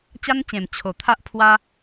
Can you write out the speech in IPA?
t͡ɕ a˦ n t͡ɕ ẽ˨˩ m t͡ɕʰ o˨˩ t̪ʰ a˦ ʔ pʰ w a˦

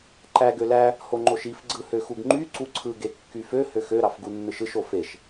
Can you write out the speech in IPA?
ǃ æ ɡ ø l æ | h o ŋ͡ǃ o ʃ i f ɡ͡ǀ ɯ h ø x u ɡ ŋ͡ǃ y ǀ u ǀʰ ɯ ɡ e kː y f ø h ø x ø ɾ ɑ f ɡ u nː ɯ ʃ ɯ ʃ o f e ʃ

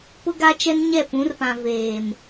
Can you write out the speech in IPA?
p ʊ˦ ɡ a˦ t͡ʃ ɛ˦ n ɲ ɛ˦˨ p ũ˨˦ r p ã˨ v eː˨ m

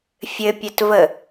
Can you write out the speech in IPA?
fʲ ɘ pʲ ɘ t v ə

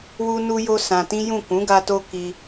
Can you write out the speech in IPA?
w u˧ n u˧ j o˧ s ã˧ t ĩ˦ j ũ˦˨ k ũ˨˦ ɡ a˧ t o˧ k i˧

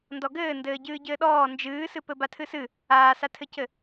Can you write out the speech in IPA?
n d ɔ ɡ ɘː n d ɘː ɟ ɨː ɟ ɘː ɗ ɔː n d͡ʒ ɨː s ɨ p ɘ b a tʰ ɨ s ɨ | aː s a tʰ ɘ c ɘ

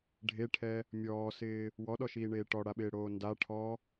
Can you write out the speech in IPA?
ɖʱ e ʈʰ ɛ | mʲ ɔː s ɪː | w ɔ ɗ ɔ ʃ iː ɳ eː ʈ ɔ ɽ a ɓ ɪː ɽ oː n d a ʈʰ ɔ

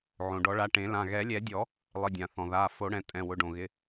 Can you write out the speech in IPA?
ʕ õ˩ ɖ ɔ˨˩˦ ɭ a˩˧˩ ʈ ẽ˨˩˦ l ã˩˧˩ ɣ ɛ˨˩˦ lʲ ɛ˨˩˦ dʲ ɔ˨˩˦ | lˠ ɪ˩˧˩ dʲ ã˩ θ ɔ̃˩ ð a˩˧˩ f o˨˩˦ ɽ ɛ̃˩˧˩ tʼ ɛ̃˩˧˩ w ʊ˩˧˩ ɖ õ˩ ɣ ɪ˩˧˩

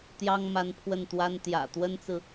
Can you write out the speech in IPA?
t̪ j ɑ˥ ŋ m a˧˥ n pʰ w ə˥˩ n t̪ w a˥ n t̪ j ä̰˨˩ t̪ w ə˥ n t͡s ɹ̩˨

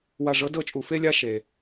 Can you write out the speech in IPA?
w a˧ ʐ ɤ˧˥ d ɤ˥˨ t͡ʃʼ u˧ f e˥ lʲ a˥ ʃ e˧

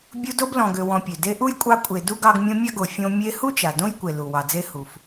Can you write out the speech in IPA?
bʲ u˦ d o˦ b l ɔ̃˨ ɡ ø˨ w ɔ̃˨ pʲ ø˩ d e˦ ʔ u˥ j kʷʼ ɑ˦ kʷʼ e˨ d u˦ ɡ ɑ˦ ɡ mʲ õ˦ mʲ a˥ ɡ o˨ fʲ õ˦ mʲ e˦ h u˥ t͡ʃ a˩ d õ˥ j kʷ e˩ l u˩ w ɑ˨ d͡z e˥ h u˩ f

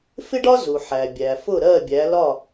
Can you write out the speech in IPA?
f ɪ˥ ɖ ɒ˥ z u˩ ħ æ˩ bʲ æ˩ f ʊ˥˩ ɾ ɜ˥˩ bʲ æ˩˥ l ɒ˥˩

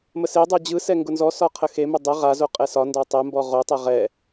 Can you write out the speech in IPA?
m ə s e dˤ ɯ d͡ʑ ɯ s ɛ ŋ ɡ ʊ n z ɔ s ɒ qʰ ə x e m ʊ dˤ ə ʁ a z o qʼ ɛ s ɒ n d ɒ tˤ ɛ m b ɔ ʁ o tˤ ɛ ʁ ɛ

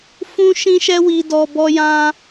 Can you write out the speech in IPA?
f ũ˦ ʃ ĩ˦ ʃ ɛ˦ w i˧ d ɔ˧ b ɔ˦ j ã˦

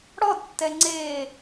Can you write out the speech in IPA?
ɽ ɔ d tː ɛ ŋ͡ǀ e

